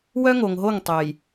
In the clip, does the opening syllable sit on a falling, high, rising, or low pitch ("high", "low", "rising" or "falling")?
high